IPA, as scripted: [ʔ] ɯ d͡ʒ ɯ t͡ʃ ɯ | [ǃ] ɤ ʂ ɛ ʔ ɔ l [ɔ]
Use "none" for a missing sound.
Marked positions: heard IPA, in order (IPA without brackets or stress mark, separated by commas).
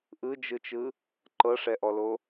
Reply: ʔ, ǃ, o